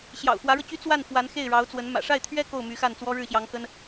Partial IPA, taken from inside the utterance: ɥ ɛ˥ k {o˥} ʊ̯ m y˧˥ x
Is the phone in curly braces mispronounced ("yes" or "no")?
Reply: yes